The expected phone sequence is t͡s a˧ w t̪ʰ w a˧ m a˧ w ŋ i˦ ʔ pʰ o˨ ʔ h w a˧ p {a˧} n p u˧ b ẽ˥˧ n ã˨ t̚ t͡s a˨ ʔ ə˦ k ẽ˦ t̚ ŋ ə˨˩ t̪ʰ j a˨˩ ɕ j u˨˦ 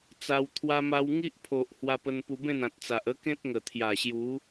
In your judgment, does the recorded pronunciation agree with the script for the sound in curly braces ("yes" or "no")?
no